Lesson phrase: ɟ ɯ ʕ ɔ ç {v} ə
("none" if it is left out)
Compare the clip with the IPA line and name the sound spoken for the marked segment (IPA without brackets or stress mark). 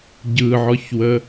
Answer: w